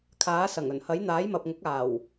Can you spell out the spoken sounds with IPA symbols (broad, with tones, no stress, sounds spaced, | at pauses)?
kʰ aː˨˥ s ɐ˨˩ ŋ ɵ˨˩ n h ɐ˨˥ j n̪ aː˨˥ j m ɐ˨ p̚ ŋ ʊ˨˥ k̚ aː˨˩ w